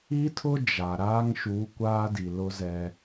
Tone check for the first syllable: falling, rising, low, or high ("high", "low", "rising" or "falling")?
high